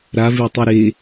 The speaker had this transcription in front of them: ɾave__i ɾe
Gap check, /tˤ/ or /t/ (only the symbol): tˤ